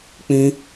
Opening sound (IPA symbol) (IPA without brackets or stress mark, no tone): k͡p